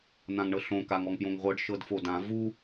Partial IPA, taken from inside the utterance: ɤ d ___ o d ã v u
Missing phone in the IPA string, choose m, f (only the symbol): f